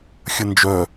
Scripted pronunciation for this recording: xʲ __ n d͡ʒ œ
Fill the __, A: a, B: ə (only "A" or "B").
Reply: B